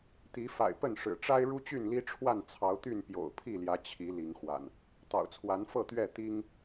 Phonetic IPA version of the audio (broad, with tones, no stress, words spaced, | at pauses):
t̪i˨˦fa̰˨˩ɪ̯ pə˥˨nʂɻ̩˨˩ ʈ͡ʂa˦ɪ̯ ɻu˦t͡ɕy˥˨nli˦ʈ͡ʂʰwa˥˨n t͡sʰɑ˨˦ʊ̯t̪y˥˨n pjo̰˨˩ʊ̯pʰi˥˨ljä˨˦ t͡ɕʰi˨˦ li˨˦ŋ xwa̰˨˩n | t̪ɑ̰˨˩ʊ̯t͡sʰwa˨˦nfɤ˥˨t̪ɥɛ˥˨ t̪i˦ŋ